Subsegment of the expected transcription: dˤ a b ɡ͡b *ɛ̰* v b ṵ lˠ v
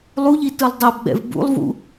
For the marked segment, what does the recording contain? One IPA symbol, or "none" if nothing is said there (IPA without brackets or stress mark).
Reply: ɛ̰